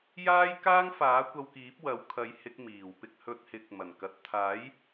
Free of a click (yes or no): yes